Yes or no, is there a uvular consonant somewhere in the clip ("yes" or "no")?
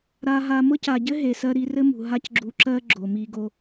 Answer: no